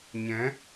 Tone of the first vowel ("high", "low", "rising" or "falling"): rising